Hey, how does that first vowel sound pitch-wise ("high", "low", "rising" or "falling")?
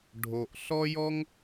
high